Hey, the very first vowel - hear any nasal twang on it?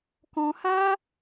yes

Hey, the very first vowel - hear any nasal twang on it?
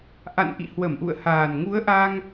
no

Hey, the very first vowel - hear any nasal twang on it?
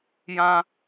yes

